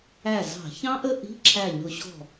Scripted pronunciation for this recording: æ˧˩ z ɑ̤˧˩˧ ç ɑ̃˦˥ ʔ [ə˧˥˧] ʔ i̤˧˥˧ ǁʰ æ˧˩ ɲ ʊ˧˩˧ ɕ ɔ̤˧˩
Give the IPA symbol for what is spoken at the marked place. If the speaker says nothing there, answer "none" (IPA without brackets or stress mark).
ə˧˥˧